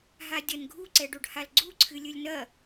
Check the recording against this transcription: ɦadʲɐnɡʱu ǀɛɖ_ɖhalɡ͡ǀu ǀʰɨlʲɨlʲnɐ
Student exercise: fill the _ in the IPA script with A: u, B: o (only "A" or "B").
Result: B